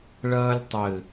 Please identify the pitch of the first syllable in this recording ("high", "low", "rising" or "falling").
high